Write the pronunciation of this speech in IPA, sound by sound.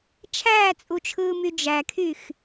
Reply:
t͡ʃʰ æː t͡sʼ u t͡ʃʰ ɯː m y d͡ʒ æ kʰ y x

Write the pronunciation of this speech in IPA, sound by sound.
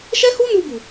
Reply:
ʃ ɛ˦ h u˦ n u˧ b u˨

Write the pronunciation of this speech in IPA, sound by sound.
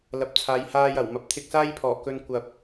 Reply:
l ɐ˨ p̚ t͡sʰ aː˨˧ j h aː˧ j ɐ˨˩ w m ɐ˧ p̚ t̪ʰ ɪ˧ k̚ s aː˥ j pʰ ɔː˨˩ k ɵ˧ n kʷ ɐ˨ p̚

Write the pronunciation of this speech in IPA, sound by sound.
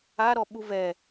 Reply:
a ɾ ɔ ɓ u v ɛ

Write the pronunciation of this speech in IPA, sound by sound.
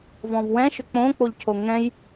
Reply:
v ɔ̃ v w ɛ̃ ʃ ʏ k͡p õ k͡p o ʎ cʰ o ŋ ɛ̃ j

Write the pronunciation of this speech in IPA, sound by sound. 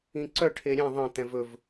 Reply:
ĩ ǀ œ ʈʰ e ɾʲ ɛ̃ ðˤ ə̃ t̪ ɛ̃ v ɵ v

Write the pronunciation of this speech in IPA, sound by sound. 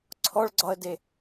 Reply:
ǀʰ ɔ ɭ ɡ͡ǀ ɒ ə̯ d e

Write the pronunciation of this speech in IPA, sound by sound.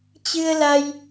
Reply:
t͡ɕ ɨ˧ ə̯ l a˧ j

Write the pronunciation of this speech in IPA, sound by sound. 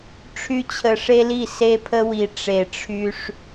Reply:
ʈ͡ʂʰ y˦ t͡ɕʰ ə˨ ʂ e˦ l i˦˨ s e˦ pʰ ə˦ w i˨ ʈ͡ʂ e˨ ʈ͡ʂʰ y˦ ʂ

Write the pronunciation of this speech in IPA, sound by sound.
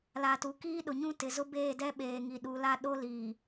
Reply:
l a˨ t u˨ k iː˦ ɗ ʊ˨ ɲ ũ˦ t ɪ˨ z ʊ˦ b eː˦˨ d ɛ˦ ɓ eː˨ ŋ i˨ ɗ uː˨ l a˦ ɗ o˦ l iː˨

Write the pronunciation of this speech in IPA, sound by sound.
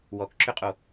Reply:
w ɔ k ǁ ʏ qʼ o

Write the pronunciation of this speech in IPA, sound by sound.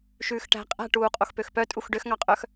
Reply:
ʃ ʉː x ʈ æ̤ qʼ æ̤ ʈ uː qʼ o x p ø x p œ tʼ u x ɖ ø x ŋ ɑ qʼ œ x

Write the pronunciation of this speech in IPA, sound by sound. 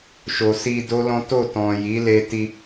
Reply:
ʃ o˨ s i˧ d o˦ l ɔ̃˦ t o˦˨ t ɔ̃˨ j i˨˦ l e˧ t i˧

